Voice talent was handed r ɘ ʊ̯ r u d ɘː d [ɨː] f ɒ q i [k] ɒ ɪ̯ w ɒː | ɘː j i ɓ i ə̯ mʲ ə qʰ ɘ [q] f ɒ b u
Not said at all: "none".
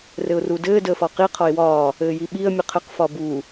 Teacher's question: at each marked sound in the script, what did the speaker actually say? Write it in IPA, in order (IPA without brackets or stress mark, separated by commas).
əː, qʰ, q